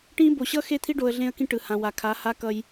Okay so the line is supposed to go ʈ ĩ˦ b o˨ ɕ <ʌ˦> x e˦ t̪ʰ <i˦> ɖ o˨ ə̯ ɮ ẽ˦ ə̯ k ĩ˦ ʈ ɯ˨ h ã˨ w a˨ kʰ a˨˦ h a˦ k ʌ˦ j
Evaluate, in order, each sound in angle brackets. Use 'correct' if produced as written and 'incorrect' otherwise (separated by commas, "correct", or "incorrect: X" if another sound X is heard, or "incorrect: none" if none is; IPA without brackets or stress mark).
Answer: correct, correct